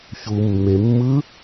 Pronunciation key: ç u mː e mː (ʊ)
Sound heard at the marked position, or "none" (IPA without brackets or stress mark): ɯ